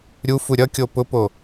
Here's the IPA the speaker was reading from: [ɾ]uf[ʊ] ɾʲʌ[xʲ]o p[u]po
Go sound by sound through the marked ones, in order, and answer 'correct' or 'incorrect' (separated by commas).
incorrect, incorrect, incorrect, incorrect